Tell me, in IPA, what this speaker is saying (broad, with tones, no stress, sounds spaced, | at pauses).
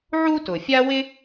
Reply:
ʕ u˥ t ʊ˩ fʲ a˥ w ɪ˥